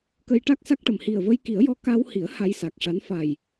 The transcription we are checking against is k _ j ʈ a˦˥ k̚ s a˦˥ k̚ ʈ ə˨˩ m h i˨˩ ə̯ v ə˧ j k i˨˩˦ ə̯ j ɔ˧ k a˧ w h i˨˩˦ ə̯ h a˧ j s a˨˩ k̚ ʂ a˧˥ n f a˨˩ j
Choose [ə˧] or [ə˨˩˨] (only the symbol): ə˧